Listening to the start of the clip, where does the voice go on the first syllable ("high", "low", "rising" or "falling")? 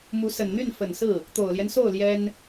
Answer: rising